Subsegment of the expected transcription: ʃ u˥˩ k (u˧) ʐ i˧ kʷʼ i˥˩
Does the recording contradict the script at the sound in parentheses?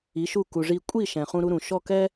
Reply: yes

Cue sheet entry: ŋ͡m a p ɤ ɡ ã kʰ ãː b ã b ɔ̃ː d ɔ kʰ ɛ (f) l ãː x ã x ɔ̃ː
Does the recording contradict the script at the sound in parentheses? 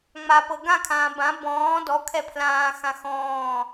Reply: yes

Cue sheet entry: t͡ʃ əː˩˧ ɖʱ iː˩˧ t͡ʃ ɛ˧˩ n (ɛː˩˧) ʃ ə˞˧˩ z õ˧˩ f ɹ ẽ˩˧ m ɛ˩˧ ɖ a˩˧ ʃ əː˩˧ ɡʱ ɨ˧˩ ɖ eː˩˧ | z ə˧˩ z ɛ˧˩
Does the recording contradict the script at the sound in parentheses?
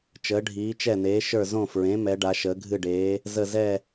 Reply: yes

